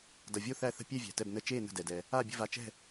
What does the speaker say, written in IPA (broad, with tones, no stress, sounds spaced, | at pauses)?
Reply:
d ʌ˩ vʲ o˥˨ θ æ˥˨ θ ə̤˥˨ pʲ ɛ˥˨ vʲ æ̤˩ t ɛ˧˩ b n ə˧˩ t͡ʃ eː˥˨ n ə̤˧˩ d ɛ˩ d ɛ˩ | a˥˨ bʲ ə̤˥˨ v a˧˩ t͡ʃ ɛ̤˥˨